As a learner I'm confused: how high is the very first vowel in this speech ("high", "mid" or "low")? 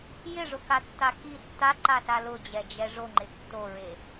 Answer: high